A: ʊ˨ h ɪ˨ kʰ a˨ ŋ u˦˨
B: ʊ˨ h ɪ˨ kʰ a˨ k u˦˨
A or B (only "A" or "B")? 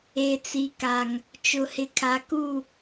B